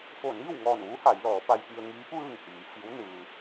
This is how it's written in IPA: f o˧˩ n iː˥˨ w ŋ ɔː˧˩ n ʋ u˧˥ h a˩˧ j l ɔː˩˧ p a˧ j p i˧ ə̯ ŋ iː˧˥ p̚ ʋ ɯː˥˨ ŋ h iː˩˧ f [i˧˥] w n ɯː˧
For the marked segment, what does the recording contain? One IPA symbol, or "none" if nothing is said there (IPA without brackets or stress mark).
i˧˥